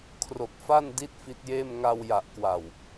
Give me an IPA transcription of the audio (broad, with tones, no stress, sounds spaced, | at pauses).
kʰ r o˨˩ k̚ f a˥˩ n d i˥˩ t̚ f i˦˥ t̚ j eː˥˩ m ŋ a˧ w j a˨˩ ʔ k w a˨˩ w